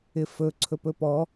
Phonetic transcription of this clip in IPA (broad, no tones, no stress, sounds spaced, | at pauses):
ɪ f ɵ ǀʰ ɵ p ɵ p ɔ